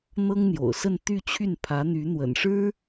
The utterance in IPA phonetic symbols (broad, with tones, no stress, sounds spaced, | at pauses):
n̪ ɤ˥ ŋ n̪ j o̰˨˩ ʊ̯ s ə˥˧ n t̪ y˥˧ t͡ɕʰ y˥˩ n pʰ ä˧˥ n̪ y˧˥ n̪ w ə̰˨˩ n ʂ ɻ̩˥